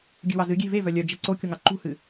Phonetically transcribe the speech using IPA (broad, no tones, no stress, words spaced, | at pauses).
ɡʲɨwɑzɨ ɡʲe̤ ve vœlʲœd͡ʒɛ ǀokʲoŋɑ ǃṳhɨ